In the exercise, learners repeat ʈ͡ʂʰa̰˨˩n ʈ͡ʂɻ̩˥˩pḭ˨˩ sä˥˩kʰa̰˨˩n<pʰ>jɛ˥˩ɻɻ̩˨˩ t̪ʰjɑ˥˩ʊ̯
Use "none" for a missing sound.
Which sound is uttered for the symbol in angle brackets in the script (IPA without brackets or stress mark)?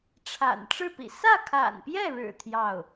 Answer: p